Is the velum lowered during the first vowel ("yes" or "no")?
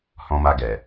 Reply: yes